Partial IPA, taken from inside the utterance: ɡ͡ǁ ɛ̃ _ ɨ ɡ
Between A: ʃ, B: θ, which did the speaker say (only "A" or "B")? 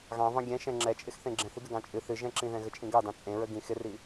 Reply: B